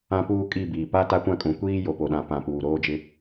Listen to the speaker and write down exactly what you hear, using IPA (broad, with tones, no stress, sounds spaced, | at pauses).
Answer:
ã˦ p uː˦ kʼ i˦˨ b iː˨ p a˦ t a˦ kʷ ã˦ kʼ ũ˨ kʷ iː˦ j o˨ p o˨ ɗ ã˨ p ã˨ p uː˨ ɾ oː˦ d͡ʒ ɪ˦